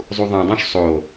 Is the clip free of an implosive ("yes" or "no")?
yes